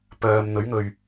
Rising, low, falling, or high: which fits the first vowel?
low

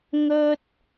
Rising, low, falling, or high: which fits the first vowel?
high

